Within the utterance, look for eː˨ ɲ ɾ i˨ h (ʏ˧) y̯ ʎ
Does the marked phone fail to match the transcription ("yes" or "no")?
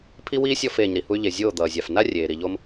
yes